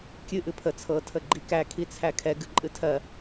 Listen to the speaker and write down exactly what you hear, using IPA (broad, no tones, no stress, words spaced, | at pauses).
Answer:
kʲɨ ʔɨpʰə t͡sʰɤ tʰəɡ͡ǃikæ kʰit͡sʰækʰɛɡ ɨǃʼɨtʰɜ